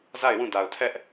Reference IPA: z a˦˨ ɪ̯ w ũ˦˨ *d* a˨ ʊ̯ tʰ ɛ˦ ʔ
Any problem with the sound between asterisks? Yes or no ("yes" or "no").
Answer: no